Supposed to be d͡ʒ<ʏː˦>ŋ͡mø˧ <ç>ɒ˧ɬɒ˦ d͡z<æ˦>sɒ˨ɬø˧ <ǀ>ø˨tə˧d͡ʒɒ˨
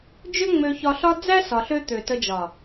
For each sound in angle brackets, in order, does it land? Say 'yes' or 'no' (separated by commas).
no, yes, yes, no